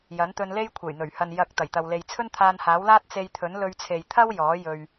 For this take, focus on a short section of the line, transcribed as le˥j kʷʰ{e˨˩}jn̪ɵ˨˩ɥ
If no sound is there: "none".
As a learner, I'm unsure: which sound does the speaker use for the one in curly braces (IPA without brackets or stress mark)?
e˨˩